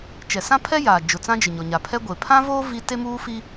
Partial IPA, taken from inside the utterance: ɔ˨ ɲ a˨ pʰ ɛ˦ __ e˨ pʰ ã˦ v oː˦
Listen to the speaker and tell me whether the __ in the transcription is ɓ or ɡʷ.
ɡʷ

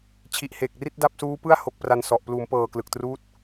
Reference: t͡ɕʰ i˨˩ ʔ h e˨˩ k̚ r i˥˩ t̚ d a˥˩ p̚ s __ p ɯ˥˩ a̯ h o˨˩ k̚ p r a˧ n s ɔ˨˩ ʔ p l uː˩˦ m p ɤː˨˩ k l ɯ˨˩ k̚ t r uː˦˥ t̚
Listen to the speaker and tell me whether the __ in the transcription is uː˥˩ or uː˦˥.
uː˦˥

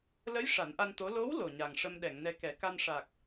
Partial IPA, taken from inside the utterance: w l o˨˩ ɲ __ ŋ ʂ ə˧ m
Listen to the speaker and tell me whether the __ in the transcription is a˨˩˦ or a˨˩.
a˨˩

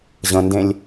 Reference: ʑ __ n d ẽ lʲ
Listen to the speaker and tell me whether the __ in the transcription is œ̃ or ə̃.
ə̃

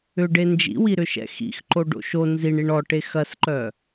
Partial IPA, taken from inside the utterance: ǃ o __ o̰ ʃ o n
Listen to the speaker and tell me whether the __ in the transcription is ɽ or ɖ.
ɖ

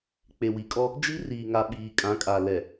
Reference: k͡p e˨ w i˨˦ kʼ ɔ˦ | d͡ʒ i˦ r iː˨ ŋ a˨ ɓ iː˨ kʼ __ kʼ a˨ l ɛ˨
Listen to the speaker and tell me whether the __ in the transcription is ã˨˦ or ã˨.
ã˨˦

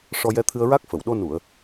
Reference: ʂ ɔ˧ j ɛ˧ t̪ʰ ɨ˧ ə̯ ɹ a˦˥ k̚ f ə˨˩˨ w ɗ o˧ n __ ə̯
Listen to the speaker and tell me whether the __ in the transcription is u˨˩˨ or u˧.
u˨˩˨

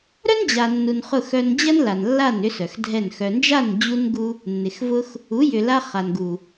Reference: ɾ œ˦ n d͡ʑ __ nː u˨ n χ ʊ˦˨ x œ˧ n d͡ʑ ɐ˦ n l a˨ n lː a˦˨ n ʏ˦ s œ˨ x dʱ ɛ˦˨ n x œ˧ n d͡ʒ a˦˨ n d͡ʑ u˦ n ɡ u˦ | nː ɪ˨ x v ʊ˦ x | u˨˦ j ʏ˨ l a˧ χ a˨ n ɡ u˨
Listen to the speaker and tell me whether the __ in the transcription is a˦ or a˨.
a˨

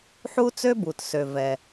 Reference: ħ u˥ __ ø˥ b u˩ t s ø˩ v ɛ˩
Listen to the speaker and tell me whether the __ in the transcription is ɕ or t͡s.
t͡s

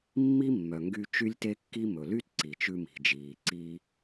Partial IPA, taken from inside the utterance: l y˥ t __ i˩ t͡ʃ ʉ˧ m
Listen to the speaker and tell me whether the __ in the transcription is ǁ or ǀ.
ǀ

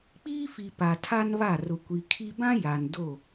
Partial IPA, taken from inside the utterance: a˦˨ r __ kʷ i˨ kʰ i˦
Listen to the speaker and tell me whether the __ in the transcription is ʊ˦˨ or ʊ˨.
ʊ˨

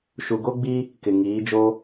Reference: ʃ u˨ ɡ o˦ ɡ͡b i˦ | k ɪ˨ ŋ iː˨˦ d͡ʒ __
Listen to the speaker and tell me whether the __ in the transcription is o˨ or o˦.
o˦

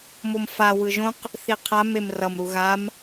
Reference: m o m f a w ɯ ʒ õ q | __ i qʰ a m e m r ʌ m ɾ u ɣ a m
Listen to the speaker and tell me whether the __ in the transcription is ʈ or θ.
θ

